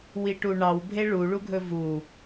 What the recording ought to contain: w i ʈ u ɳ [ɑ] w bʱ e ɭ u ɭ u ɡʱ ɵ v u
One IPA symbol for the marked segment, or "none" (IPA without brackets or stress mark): ɑ